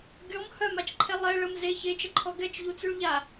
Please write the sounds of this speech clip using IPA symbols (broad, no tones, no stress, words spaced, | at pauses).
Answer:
ɡʲɔm hœmat͡ʃǃʰɛ lˠɛ ɭəm ze çet͡ʃəǃʰɔ ɡɛt͡ʃʎut͡syɭ ʎa